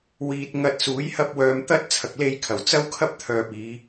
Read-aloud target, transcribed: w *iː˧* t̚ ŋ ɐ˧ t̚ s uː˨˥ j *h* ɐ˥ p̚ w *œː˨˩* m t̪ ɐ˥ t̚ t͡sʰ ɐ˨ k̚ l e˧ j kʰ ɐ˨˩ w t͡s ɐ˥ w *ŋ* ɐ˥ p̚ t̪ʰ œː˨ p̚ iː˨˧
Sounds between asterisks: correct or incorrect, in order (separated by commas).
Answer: incorrect, correct, incorrect, incorrect